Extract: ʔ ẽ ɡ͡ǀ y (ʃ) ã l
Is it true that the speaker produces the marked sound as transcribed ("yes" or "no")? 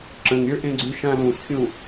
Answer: yes